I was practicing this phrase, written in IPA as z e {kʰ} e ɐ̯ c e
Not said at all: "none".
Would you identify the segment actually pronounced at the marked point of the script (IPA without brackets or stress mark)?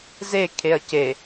kʰ